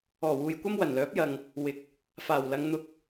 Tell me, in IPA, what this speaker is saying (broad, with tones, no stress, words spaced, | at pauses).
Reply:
ɔː˨˩wuː˨jkʷɐ˥m wɐ˨˩nlœː˨˥p̚jɐ˨ŋ | wɪ˨˥k̚ | faː˨˩w lɐ˨˧ŋn̪ʊ˧k̚